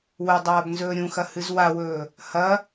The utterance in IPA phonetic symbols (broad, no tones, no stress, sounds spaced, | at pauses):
w ɵ dˤ aː b n z ɵː ɾʲ ũ x ɐ h ɨ z w a w ɵː | h ɐ